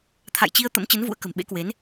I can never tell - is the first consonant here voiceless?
yes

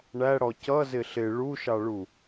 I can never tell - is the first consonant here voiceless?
no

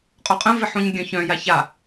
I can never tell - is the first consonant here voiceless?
yes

